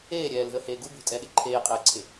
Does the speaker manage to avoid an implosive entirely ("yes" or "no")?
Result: no